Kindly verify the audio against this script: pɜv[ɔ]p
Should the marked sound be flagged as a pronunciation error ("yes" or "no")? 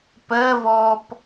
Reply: yes